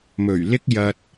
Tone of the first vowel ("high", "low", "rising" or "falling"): low